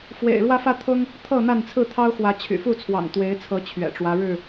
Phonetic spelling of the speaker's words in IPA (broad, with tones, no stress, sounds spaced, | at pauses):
f w ḛ˨˩ ɪ̯ ɻ w ä˦ f ä˦ t̪ʰ ʊ˦ ŋ | t̪ʰ ɤ˥˨ n̪ a˥˨ n t͡sʰ ɹ̩˥˨ t̪ʰ ɑ˦ ʊ̯ x w ä˨˦ t͡ɕʰ y̰˨˩ f u˥˨ t͡sʰ w ɑ̰˨˩ ŋ t̪ w e˨˦ ɪ̯ t͡sʰ ɤ˨˦ t͡ɕʰ ɥ ɛ̰˨˩ ʈ͡ʂ w ä˦ ɻ ɻ̩˥˨